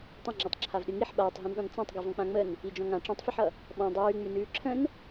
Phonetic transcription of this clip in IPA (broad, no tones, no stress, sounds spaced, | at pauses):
tˤ ə̃ ŋ͡ǁ ɔ tˤ ǁʰ a v ɗ ɨ ŋ i ħ ɓ aː tˤ ɦ ĩ n ɗ ɔ̃ n t͡s ã tˤ ɡ ɨ v ɔ̃ k͡p ã ŋ͡m ə n | i d͡ʒ ɔ̃ ŋ ã ʈ͡ʂ ĩ tˤ f ɨ ħ ʌ | ɓ ɔ̃ dˤ ʉː ŋ͡m ʉ n ʉː ǁʰ ə̃ n